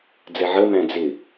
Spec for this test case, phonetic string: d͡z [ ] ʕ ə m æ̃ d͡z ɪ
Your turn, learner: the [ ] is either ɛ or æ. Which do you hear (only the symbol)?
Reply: ɛ